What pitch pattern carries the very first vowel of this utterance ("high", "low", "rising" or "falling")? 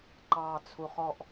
low